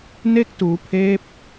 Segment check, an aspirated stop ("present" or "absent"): present